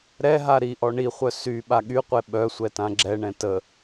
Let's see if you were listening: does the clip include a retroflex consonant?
yes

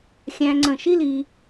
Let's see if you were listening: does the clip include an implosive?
no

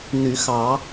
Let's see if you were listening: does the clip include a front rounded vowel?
yes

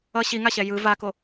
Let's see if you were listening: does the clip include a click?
no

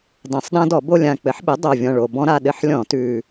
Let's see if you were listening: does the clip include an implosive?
yes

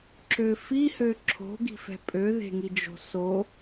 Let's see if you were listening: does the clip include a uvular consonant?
no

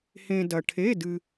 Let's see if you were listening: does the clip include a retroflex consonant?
yes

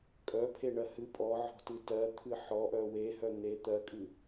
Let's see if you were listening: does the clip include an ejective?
yes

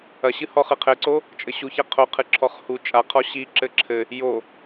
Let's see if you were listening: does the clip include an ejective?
yes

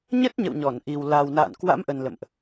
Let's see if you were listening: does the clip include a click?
no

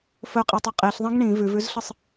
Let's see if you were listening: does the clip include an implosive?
no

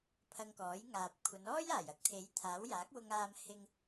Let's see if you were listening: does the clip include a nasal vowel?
no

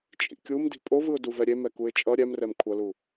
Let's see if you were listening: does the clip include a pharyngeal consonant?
no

